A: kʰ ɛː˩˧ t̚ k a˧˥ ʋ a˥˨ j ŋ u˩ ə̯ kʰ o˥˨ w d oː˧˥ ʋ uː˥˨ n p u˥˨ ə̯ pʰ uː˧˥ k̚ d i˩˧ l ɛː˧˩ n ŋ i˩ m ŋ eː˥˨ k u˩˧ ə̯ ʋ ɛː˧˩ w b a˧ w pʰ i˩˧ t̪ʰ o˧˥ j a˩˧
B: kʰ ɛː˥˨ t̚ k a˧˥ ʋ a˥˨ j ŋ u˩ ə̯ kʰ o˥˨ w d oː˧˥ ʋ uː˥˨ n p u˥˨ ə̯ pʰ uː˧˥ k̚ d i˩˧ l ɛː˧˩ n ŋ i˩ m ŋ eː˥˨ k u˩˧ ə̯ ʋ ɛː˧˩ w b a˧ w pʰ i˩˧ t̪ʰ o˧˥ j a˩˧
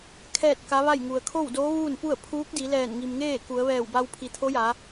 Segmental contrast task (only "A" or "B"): B